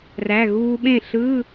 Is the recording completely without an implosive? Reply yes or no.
no